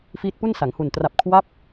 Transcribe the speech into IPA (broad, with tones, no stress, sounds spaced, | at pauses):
f iː˦˥ t̚ p u˥˩ n s a˩˦ ŋ h u˨˩ n t r a˨˩ p̚ kʰ w a˥˩ p̚